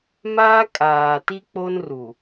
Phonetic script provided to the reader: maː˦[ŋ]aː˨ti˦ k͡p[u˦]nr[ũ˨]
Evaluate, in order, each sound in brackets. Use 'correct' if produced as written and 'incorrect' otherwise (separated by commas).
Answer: incorrect, incorrect, incorrect